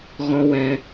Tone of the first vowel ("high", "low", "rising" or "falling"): high